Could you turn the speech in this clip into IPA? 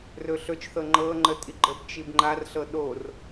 r ɵ ɬ ɵ t͡ʃ θ ɤ ŋ͡ǃ ɤ ŋ͡ǃ ə tʼ i ɡ͡ǃ ə b t͡ʃ i b ŋ͡ǃ a r ɬ ɤ ɗ o r

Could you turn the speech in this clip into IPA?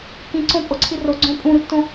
k ĩ ǀ õ pʼ o ǀʰ i r o ɡ͡ǀ õ pʼ ũ ɾ u tː õ

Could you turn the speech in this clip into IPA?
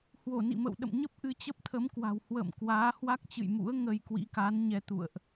h w o˧˩ n ḭ˧˨ m ə̰˧˨ w ɗ ə̰˧˨ m ɲ ə˦˥ p̚ ʔ ɨ˧ t͡ɕ ə˦˥ p̚ t̪ʰ ə˨˦ m k w a̤˨˩ w h w ə̰ː˧˨ m k w aː˨˦ h w a˦˥ k̚ t͡ɕ ɨ̰˧˨ j m ṵ˧˥ ə̯ ŋ ə˧ j k w ḭ˧˥ k a˨˦ n ɲ ɛ˧ t̪ ṵ˧˨ ə̯ ʔ

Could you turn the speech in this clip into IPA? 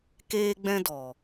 k eː˦ ɡ͡b ɛ̃˦ d ɔ˨

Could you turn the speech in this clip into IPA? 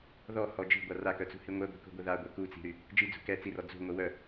ð ɔ h ɔ d͡ʒ i̤ ɡʷ a r a k œ t͡s ṳ h i ŋʷ ɛ ɡʷ i̤ k ṳ ɡʷ ə ð a ɡʷ ɛ k u t͡s i̤ ɾ y | d͡ʒ i d͡z ṳ k ɛ t͡s i r ɔ d͡z ṳ ŋʷ ə w œ

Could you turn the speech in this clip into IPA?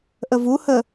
ʔ ə v u h ə

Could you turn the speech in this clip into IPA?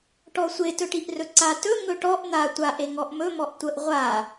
ʈ ɔ sʷ e t ɵ ʈ i ʔ r ɵ ǀ a t ɵ ŋ ɵ ʈ ɔ ʔ n̪ a tʷ a ʔ e ŋ ɔ ʔ m ɵ m ɔ ʔ tʷ ə ʔ ʁʷ a

